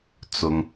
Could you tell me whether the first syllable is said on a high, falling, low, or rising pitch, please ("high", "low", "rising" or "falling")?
low